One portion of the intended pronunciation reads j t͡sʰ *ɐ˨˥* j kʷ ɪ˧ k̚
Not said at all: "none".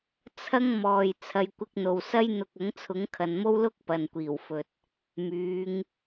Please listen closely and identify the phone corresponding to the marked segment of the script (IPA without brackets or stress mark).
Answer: ɐ˨˧